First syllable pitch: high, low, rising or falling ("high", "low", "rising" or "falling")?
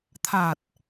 low